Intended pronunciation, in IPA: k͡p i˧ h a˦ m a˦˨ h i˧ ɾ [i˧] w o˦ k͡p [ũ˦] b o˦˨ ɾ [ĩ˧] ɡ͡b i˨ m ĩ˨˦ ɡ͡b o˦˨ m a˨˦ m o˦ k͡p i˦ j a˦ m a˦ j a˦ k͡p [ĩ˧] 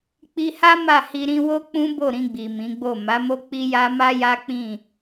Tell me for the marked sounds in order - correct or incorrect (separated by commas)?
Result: incorrect, correct, correct, incorrect